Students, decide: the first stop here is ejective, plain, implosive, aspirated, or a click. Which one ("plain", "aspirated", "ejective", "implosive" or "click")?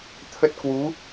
aspirated